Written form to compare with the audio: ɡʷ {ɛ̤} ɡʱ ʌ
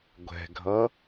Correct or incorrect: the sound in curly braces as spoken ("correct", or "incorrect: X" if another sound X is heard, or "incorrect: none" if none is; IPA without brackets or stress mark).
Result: correct